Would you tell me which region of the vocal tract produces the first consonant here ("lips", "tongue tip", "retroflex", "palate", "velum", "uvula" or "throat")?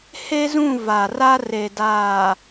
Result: throat